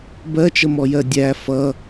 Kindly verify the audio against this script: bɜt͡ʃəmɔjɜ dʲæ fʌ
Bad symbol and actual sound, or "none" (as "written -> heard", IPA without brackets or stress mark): none